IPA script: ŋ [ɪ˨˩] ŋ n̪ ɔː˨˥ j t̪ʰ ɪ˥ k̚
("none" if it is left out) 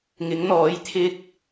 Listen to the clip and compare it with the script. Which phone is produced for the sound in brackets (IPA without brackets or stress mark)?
ɪ˨˥